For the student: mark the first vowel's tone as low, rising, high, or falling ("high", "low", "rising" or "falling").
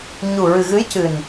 low